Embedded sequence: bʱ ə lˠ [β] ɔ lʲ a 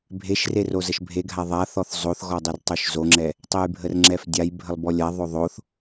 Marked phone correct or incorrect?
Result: incorrect